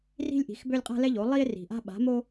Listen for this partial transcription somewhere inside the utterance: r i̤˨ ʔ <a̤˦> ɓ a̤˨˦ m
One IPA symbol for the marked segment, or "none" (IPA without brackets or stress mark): a̤˦